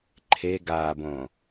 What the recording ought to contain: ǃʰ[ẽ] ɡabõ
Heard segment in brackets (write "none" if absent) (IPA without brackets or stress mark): e